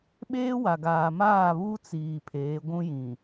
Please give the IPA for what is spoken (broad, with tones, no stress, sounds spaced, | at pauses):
ɓ eː˦ w a˨ ɡ aː˨ m aː˦˨ β uː˦ t͡s iː˨ pʰ eː˨˦ ɡʷ ũ˦ j ĩ˨